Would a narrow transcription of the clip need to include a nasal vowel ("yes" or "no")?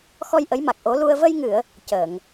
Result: no